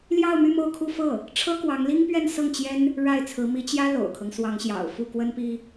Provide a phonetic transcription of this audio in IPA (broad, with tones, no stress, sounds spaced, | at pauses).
l j ɑ˥˧ ʊ̯ m y˥˧ m o˥˧ ʊ̯ kʰ u˥˧ f ɤ˥˩ | ʈ͡ʂʰ ɤ˥ k w ɑ˧˥ ŋ l i˥ ŋ p ɥ ɛ˥˧ n s ɤ˥˩ ŋ t͡ɕ j ɛ˥ n | ɻ a˥˩ ɪ̯ t͡sʰ ɹ̩˧˥ m i˧˥ t͡ɕ j ä˥ l o̰˨˩ ʊ̯ kʰ ɤ˦ ŋ s w ɑ˧˥ ŋ ɕ j ɑ̰˨˩ ʊ̯ f u˥˩ k w ə˥ n p i˥